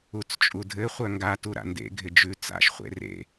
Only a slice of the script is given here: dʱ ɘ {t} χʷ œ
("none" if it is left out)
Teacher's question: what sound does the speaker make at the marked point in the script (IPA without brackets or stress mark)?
none